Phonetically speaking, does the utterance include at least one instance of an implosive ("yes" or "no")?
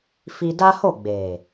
no